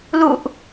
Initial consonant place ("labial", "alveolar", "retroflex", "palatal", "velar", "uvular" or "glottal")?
alveolar